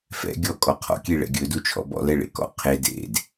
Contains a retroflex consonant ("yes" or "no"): yes